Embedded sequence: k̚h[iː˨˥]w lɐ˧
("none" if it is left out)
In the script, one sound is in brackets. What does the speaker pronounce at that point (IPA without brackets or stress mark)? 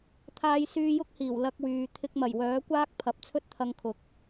iː˨˩